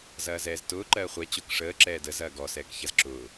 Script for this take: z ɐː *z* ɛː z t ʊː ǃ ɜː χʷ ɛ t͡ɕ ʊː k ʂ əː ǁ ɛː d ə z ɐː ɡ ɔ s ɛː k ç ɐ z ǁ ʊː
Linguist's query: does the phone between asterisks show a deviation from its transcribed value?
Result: no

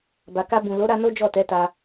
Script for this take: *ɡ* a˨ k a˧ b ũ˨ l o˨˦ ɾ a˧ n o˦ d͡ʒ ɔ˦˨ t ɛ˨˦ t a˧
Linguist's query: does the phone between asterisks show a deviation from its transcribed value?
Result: yes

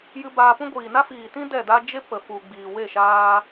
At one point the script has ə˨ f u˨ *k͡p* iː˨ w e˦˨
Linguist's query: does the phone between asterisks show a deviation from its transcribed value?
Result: yes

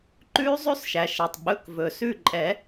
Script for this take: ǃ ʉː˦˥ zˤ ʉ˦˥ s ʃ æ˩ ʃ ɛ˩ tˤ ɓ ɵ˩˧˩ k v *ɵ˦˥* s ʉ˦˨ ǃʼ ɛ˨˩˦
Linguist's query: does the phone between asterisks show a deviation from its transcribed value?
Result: yes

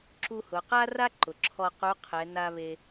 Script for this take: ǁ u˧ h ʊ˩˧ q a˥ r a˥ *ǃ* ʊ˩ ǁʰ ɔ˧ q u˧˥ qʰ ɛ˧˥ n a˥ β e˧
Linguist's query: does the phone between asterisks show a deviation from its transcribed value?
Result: no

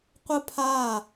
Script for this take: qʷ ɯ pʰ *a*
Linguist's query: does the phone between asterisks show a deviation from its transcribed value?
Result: no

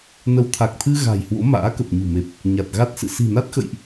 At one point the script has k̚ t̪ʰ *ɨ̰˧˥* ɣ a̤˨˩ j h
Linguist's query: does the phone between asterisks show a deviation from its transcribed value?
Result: yes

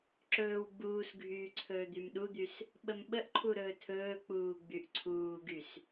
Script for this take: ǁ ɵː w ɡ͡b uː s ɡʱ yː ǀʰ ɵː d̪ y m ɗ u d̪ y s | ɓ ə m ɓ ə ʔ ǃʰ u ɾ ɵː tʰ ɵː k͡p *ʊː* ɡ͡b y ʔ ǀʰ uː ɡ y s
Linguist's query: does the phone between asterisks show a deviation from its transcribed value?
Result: yes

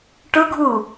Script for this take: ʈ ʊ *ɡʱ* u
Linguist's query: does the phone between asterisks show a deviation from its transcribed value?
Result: no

